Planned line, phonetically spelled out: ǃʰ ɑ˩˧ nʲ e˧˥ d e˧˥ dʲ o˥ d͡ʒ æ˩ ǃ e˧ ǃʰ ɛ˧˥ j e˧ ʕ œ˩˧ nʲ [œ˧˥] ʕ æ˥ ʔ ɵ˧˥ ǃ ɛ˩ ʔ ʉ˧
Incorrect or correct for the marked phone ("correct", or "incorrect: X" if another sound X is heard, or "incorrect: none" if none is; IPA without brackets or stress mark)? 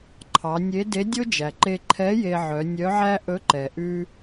correct